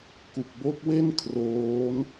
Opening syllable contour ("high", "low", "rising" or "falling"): low